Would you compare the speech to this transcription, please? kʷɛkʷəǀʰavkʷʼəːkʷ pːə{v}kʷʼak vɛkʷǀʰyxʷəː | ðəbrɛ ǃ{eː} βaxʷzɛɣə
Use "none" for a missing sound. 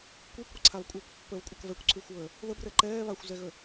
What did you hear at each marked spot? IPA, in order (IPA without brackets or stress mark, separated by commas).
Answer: v, ɛː